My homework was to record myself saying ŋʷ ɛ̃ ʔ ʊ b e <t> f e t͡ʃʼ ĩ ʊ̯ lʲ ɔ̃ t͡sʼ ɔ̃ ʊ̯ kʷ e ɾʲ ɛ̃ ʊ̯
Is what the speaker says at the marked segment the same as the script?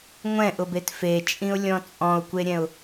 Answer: yes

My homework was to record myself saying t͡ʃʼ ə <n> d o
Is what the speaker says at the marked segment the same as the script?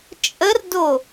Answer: no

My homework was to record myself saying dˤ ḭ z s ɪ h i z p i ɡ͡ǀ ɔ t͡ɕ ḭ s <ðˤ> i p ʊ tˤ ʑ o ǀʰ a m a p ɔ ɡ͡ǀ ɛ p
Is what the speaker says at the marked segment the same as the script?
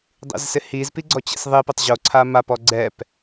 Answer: yes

